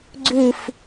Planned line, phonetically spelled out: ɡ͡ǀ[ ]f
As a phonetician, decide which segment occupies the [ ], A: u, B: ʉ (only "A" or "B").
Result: B